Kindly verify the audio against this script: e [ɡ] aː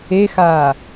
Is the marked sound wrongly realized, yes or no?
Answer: yes